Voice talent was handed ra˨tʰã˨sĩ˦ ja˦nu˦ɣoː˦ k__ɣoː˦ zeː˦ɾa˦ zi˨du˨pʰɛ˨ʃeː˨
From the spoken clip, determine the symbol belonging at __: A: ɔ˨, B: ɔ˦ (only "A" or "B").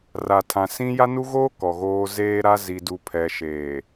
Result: A